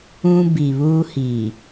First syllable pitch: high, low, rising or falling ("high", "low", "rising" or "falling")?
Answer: high